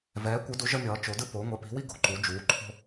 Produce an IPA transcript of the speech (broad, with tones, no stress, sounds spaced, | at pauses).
v ɛː˨˦ kʷ ɯ˨˦ d u˨˦ ʒ ʌ˦ mʲ ʌː˨˦ t͡ʃ o˨˦ d ɯ˦ p o˨˦ ŋʷ ɛ˨˦ p i̤˨˦ w i˦ ɡ o̤˨˦ ǃ u˨˦ d͡ʒ uː˨˦ ǃʰ o̤˦